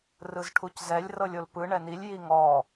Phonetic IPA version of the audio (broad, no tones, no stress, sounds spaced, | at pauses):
r ɯ z ʈʰ u c z ɛ lʲ r ɤ lʲ o l p ɯ ɳ ɛ n i lʲ j i ŋ ɔ